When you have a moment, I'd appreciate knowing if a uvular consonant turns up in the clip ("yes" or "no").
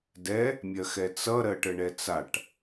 no